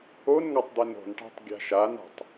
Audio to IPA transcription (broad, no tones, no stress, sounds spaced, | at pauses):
o n ŋ a tˤ d̪ ɛ n o̤ n ʈ a̤ tˤ ɡʲ a̤ ʃ a n a̤ tˤ